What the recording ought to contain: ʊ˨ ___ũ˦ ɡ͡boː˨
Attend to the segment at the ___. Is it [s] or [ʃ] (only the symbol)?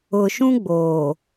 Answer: ʃ